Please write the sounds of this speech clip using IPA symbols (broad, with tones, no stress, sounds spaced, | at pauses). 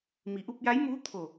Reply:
m i˩˧ ʔ u˧ p̚ j a˧˥ j m uː˧˥ t̪ʰ o˧˩